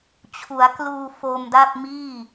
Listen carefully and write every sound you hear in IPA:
t͡ɕʰ u˩˦ a̯ k l uː˧ f o˧ m d a˥˩ p̚ m iː˥˩

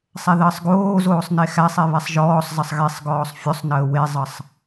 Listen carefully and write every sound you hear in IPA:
sˤ ɛ ð əː sˤ ɡ oː z oː sˤ n e x æ sˤ e β ɛ sˤ ʒ ɔː sˤ z ə sˤ ɣ e sˤ ɡ ɔː sˤ fʲ o sˤ n əː w e zˤ ə sˤ

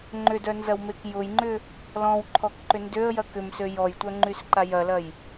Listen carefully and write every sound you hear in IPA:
ŋ͡ǃ ʏ d œ n z ɐ w m e k j ʊ j ŋ͡ǃ ʏ | l ɔ̃ w ǃʰ ɔ k ǃ ʏ n d ø ə̯ j ɐ k ʏ m s ø j ɔ j tʷ œ ŋ͡ǃ y s ǃ a j ɐ l ɐ j

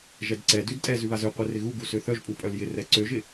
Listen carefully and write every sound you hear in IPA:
ʒ ɛ d ǀ ɛ d ʉ d tʼ ɛ z ʉ β a z ø qʷ ɛ r ɪ ɣ u ɡ u s ø θ œ ʒ pʼ u pʼ œ l j ɪ r ɛ ǀ ø ʒ ɪ

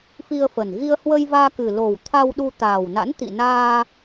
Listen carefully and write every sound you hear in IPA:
f i˧ ə̯ f ə˨˩ n ɣ i˧ ə̯ h w ə˧ j v aː˧ k ɨ˨˩ l o˨˩ w t̪ʰ a˧ w ɗ u˧ t̪ aː˨˩ w n a̰˧˥ n t̪ ḭ˧˨ n aː˧

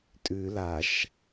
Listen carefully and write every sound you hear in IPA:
tʼ ʉ l a ʃ

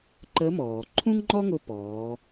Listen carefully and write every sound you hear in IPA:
ǃ ə˧˥ m ɔː˩ ǃʰ ũ˥ ŋ ŋ͡ǃ ɔ˥ ŋ ʊ˧ p ɔː˩˧

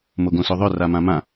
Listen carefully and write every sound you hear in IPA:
m o ɡ õ s o ðˤ ʏ r a m ã m ã

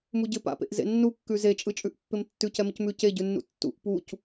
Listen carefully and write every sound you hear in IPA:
m u ɟ ɪ p a̰ p ḛ ʔ z ḛ nː u kː ʉ z e t͡ʃʼ ɯ t͡ʃʼ ʉ ʔ pː ɪ m tː ʉ c ɛ m ɪ c m ʉ c e ɟ ʉ nː ṵ tː ṵ ʔ p u c

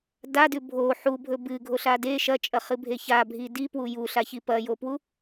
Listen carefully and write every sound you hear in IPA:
d a d ʉ bʱ o ħ u bʱ ɵ b ɨ ɡʱ o ɬ a d e ʃ ɐ t͡ʃʼ ɐ χ ɨ bʱ e ç a bʱ i d i p w u j u ɬ a ç i p ɐ j o p w u

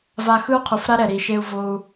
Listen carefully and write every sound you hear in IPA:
v a˧ x ɯ˦ u̯ qʰ u˨ f ɾ a˦ ɾ ɛ˨ ɾ i˨ ʃ e˦ u̯ v o˧ u̯

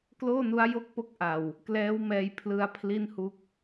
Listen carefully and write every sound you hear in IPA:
k l oː˥˩ n u˦˥ a̯ j o˥˩ k̚ p o˥˩ k̚ ʔ a˨˩ w | k l ɛː˦˥ w m ɛː˧ j pʰ l ɯ˧ a̯ pʰ l i˥˩ n h u˦˥ k̚

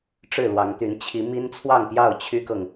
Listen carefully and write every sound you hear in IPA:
ʈ͡ʂ ɻ̩˥˨ l w ɑ˨˦ ŋ t̪ y˨˦ n t͡ɕʰ i˨˦ m i˦ n t͡sʰ w ɑ˥˨ ŋ p j ɑ˥˨ ʊ̯ t͡ɕʰ y˦ k ɤ˨ ŋ

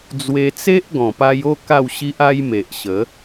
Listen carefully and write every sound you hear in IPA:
d͡z w e˧ t͡s e˦ ʔ ɡ ɔ̃˨˩ p a˧ j o˥˧ k a˥˧ w ɕ i˦ ʔ a˦ j m e˨ ʔ ɕ ə˨˦

